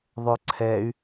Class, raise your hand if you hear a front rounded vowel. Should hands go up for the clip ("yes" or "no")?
yes